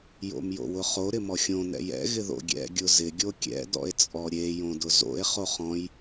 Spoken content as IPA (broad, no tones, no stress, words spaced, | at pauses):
jo̰mjo̰wʊχo ɾɪmɔxʲõ nɛ̰jɛ̰ ɣɪðo̰ɡʲɛ̰ ɡʲʊzɪ ɡʲokʲɛ̰ dɔ̰e̯t͡sʼɔɾʲe jõdʊzo̰e̯ χoχɔ̃j